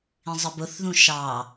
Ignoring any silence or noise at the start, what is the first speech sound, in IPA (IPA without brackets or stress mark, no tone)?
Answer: ĩ